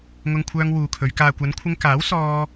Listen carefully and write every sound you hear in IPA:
ŋ ʊ˧ ŋ kʷʰ œː˧ ŋ w uː˨ kʰ ɵ˨˧ ɥ k aː˨ kʷ ɐ˨˧ n kʷʰ ɪ˧ ŋ k aː˨˥ w s ɔː˥

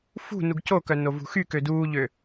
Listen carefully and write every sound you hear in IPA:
f ṳ n u ɡ c o k œ n o v ṳ x y k ø d uː ʎ ø

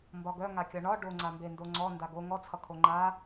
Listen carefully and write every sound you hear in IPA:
m b ɒ ɡ œ ŋ a kʲ ɒ ɳ ɒ ɖ o ŋ͡ǀ a m b e n d o ŋ͡ǀ ɔ n d a ɡ o ŋ ɔ t͡sʰ ʌ kʰ o ŋ͡ǃ a

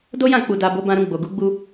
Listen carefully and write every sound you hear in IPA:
d o˦ j ã˦˨ k͡p u˨ d a˨ b o˨˦ b ã˧ ɾ ũ˧ ɡ͡b o˨ ɡ u˨˦ ɡ͡b u˧

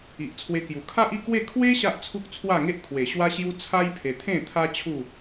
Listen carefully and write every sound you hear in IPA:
i˨ ʔ t͡sʰ w e˧ k j u˨˩ kʰ a˦ ʔ i˥˧ k w e˥˧ kʰ w e˦ ɕ a˦ ʔ t͡sʰ u˦ k̚ t͡sʰ w a˥˧ ŋ e˦ ʔ kʰ w e˨˩ ɕ w a˦ ɕ j u˦ t͡sʰ a˦ j pʰ e˧ t̪ʰ ẽ˥˧ t̪ʰ a˦ t͡ɕʰ u˥˧

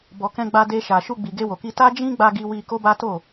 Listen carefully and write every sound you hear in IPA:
b ɔ˨ k ɛ̃˧ ɡ͡b a˧ d e˧ ʃ a˨ ʃ u˧ ɡ͡b i˨ ɡ e˧ w o˨ k i˧ t a˦ d͡ʒ ĩ˦ ɡ͡b a˧ ɡ i˧ w i˧ k o˦ b a˦ t o˦˨

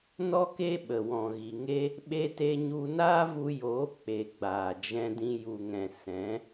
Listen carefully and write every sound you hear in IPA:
n ɔ˦ k e˦ ɓ ə˨ w ɔ̃˨ ɣ i˨ ŋ e˦ | ɓ e˧ t e˧ ɲ u˧ n aː˦ v u˧ j oː˨˦ k͡p e˨ ɡ͡b aː˨ d͡ʒ ɛ̃˧ d ĩ˧ j u˨ ŋ ɛ̃˨ s ɛ̃˨˦

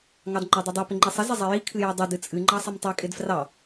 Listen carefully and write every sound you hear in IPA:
ŋ ɑ d ŋ͡ǃ a dˤ ɪ dˤ i p ɪ ŋ͡ǃ i sˤ ɪ z ɪ zˤ i j i kʰ ɨ j u dˤ ɪ d ɨ t͡sʼ ɨ ŋ͡ǃ ɑ sˤ ɪ m tˤ i kʼ ɪ d f r ɑ

